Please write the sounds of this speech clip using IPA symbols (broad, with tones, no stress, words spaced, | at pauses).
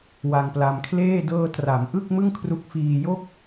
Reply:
wa˧ŋpla˧mkʰleː˥˩ dɤː˧tra˩˦m ʔɯ˥˩k̚mɯ˥˩ŋkʰru˦˥k̚ fiː˧jo˥˩k̚